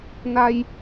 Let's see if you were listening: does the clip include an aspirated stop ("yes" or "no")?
no